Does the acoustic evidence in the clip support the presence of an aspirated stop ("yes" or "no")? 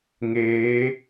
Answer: no